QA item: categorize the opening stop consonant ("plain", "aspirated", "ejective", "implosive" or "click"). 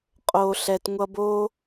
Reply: ejective